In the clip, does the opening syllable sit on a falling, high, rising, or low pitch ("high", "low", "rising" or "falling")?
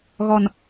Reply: low